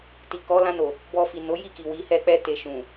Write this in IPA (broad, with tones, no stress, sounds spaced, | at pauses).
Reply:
t i˨ k ɔ˨˦ l ã˧ n o˨ | b ɔ˧ f i˨ n o˨˦ j i˦˨ k i˨ w i˨˦ h ɛ˦˨ k͡p ɛ˧ t e˨ ʃ ũ˨